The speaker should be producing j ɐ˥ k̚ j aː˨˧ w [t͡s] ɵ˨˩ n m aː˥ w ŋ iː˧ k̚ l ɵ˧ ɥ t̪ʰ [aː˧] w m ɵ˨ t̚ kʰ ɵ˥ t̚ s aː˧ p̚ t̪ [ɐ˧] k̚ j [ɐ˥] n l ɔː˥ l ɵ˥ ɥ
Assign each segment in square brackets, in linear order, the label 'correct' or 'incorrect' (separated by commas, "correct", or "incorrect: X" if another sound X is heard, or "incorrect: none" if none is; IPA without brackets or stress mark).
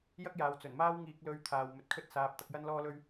correct, incorrect: aː˨, correct, correct